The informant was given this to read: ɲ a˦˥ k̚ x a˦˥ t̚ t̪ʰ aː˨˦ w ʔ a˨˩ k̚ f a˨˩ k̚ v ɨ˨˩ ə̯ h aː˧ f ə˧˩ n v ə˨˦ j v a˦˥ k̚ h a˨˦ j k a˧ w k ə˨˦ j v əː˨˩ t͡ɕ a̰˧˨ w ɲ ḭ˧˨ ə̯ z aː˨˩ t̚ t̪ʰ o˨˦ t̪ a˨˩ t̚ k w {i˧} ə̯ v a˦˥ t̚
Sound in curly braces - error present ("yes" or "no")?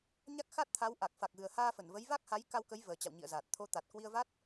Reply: no